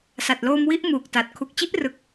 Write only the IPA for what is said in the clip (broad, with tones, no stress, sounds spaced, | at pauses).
s a˨˩ t̚ l oː˧ m w i˦˥ ʔ m uː˨˩ k̚ t a˨˩ t̚ kʰ u˨˩ k̚ t͡ɕ i˦˥ ʔ r ɯ˨˩ k̚